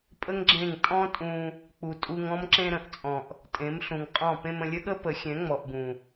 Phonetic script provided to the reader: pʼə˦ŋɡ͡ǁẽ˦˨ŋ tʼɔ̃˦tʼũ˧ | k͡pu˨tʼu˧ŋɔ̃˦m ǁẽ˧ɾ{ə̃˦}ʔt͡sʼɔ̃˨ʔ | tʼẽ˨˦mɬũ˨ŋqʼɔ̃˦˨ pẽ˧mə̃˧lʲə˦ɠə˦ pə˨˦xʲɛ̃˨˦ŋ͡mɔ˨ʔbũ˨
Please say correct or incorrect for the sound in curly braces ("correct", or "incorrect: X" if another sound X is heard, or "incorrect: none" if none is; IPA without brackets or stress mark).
incorrect: ə̃˨